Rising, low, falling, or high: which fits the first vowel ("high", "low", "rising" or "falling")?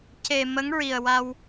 low